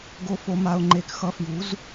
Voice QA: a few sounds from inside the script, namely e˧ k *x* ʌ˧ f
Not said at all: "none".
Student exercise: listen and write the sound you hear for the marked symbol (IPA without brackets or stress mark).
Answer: x